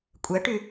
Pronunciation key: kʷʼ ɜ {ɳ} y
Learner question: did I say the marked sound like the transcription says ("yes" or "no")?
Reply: no